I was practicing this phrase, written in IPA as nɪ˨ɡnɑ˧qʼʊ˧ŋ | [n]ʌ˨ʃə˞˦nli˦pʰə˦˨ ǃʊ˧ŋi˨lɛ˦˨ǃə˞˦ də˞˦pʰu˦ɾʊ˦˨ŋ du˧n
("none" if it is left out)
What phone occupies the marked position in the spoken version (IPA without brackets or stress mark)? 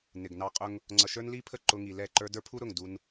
ŋ͡ǀ